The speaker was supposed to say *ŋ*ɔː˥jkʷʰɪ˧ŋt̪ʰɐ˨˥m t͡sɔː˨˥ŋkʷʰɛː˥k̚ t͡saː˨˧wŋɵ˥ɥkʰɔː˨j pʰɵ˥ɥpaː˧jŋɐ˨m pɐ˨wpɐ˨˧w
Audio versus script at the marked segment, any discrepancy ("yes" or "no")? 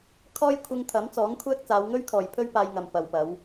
yes